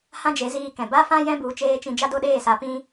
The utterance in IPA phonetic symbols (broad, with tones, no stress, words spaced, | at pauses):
hã˦d͡ʒe˨˦ziː˧ kɛ̃˨ ba˦fã˦ jɛ̃˦bu˨˦t͡ʃeː˧t͡ʃĩ˧ d͡ʒa˦do˦ɗeː˦˨sa˧ pĩ˦